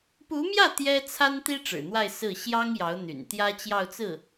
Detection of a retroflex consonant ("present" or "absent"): present